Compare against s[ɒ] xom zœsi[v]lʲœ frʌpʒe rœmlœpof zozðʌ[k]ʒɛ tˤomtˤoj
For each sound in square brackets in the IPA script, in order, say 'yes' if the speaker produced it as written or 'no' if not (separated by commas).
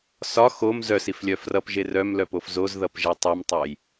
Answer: yes, no, no